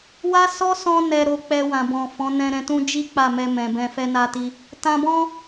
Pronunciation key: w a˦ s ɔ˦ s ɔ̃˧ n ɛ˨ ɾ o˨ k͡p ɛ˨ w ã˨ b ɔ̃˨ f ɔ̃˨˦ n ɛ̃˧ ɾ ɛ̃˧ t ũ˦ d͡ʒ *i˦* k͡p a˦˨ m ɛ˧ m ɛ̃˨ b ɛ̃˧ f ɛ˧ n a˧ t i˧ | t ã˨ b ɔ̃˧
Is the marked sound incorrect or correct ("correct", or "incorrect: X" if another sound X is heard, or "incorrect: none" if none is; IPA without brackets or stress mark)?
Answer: correct